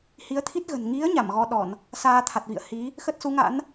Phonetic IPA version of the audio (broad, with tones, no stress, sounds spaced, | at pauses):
h i˨˦ ə̯ t̪ʰ i˦˥ t̚ ɣ ə̤˨˩ n ŋ i˨˦ ə̯ ɲ a˧˩ m ɣ ɔ˧ ɗ ɔ˧˩˨ n | s aː˧ t̪ʰ a˨˩ t̚ v ḭ˧˨ ə̯ h i˨˦ | x ə˦˥ t̚ s u˨˦ ŋ a̰˧˥ n